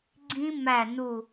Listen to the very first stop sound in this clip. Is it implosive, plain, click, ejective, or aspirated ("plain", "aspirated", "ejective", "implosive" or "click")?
click